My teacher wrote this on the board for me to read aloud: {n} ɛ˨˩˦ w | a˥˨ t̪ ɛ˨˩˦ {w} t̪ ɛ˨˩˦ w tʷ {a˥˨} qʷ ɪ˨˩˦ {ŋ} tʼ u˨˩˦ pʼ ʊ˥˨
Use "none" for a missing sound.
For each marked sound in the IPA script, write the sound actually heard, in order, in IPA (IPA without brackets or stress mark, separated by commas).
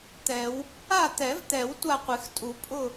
t̪, v, a˥˨, x